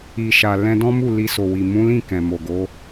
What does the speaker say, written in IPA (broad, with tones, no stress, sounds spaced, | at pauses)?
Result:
i˨ ʃ a˨ l ɛ̃˧ d ɔ̃˦ m u˦˨ l i˧ s o˨ w i˨ m ũ˨˦ l ĩ˦˨ k ɛ̃˨ m o˨ ɡ o˨˦